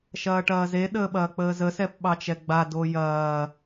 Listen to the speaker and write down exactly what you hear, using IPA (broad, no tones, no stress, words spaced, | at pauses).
ʃɐːʈɐːze ɗəːɓɐːk͡pəːzə sɛpɓɑt͡ʃɛɡ͡ba dojɐː